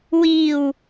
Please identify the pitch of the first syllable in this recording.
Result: low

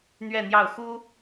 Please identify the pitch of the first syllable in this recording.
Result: falling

